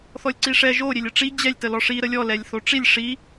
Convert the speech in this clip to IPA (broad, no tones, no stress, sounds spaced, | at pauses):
θ ɔ lʲ ǀ i ʂ ɛ ʒ o ɾʲ e lʲ ə ʈ͡ʂ i d͡ʑ ɛ lʲ t ə l ɔ ʂ i ɾ ə lʲ ɔ l ɛ lʲ θ o ʈ͡ʂ i lʲ ʂ i